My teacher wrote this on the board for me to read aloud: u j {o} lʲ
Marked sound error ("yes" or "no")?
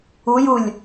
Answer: yes